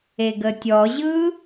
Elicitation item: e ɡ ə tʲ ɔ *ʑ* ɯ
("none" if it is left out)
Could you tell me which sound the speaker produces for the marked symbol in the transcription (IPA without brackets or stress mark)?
ʑ